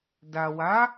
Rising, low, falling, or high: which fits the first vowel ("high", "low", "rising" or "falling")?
low